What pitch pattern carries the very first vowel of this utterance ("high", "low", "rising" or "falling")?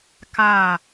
falling